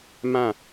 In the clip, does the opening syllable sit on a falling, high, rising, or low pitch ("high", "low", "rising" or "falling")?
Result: falling